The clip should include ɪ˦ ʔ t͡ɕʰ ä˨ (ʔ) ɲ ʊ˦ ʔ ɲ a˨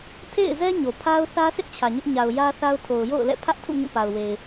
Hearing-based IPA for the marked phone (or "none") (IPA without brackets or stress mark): none